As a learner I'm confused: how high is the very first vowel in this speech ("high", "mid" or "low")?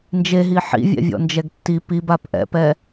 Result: mid